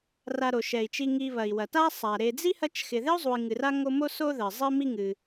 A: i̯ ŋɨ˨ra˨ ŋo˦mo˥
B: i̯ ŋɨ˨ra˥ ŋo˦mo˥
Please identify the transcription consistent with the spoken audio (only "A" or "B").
B